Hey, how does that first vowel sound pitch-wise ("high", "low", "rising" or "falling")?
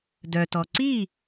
low